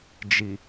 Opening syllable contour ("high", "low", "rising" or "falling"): low